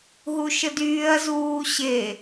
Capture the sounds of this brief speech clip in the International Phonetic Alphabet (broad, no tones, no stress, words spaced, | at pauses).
ɦuʃədyːɐ̯ zuːɕe